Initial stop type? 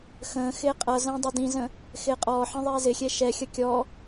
ejective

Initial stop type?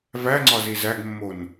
click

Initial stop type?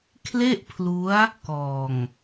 aspirated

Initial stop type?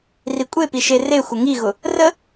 ejective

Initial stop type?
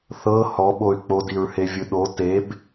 implosive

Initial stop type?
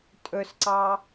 ejective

